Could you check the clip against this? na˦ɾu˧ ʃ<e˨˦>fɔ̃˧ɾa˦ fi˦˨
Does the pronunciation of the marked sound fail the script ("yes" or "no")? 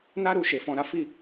yes